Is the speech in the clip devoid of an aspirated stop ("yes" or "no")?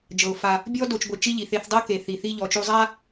yes